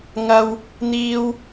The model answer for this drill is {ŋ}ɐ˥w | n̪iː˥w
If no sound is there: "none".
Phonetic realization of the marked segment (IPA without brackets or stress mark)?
ŋ